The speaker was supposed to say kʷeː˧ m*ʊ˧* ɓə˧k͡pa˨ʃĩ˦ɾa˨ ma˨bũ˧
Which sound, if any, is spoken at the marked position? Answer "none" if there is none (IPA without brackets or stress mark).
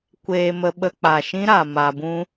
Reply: ə˧